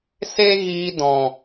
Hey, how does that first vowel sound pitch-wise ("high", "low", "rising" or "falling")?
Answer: high